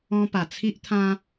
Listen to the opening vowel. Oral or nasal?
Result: nasal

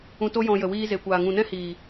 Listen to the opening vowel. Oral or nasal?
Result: nasal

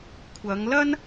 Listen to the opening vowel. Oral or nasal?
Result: oral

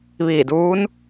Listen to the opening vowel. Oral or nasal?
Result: oral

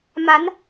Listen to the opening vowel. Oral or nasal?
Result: oral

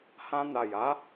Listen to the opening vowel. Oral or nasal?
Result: nasal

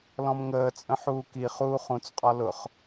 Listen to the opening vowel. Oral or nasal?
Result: nasal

